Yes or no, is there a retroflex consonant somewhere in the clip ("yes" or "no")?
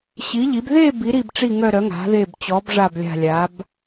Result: yes